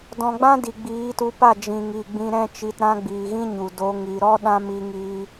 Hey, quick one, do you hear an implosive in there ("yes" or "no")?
yes